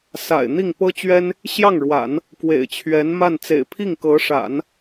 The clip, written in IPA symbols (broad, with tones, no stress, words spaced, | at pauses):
sa̰˨˩ɪ̯ n̪i˥˩ŋpɤ˥t͡ɕɥɛ˥n | ɕjɑ˥˩ŋɻwa̰˨˩˦n | kwḛ˨˩ɪ̯t͡ɕʰɥɛ˧˥nma˥˩n t͡sḛ˨˩ɪ̯pʰi˥˩ŋkɤ˧˥ʂa̰˨˩˦n